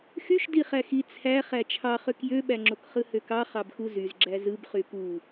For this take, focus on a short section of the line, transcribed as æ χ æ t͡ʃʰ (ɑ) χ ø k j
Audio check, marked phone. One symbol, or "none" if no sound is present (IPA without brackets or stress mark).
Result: ɑ